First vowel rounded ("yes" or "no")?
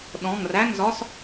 yes